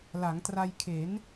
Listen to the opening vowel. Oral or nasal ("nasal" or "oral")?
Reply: oral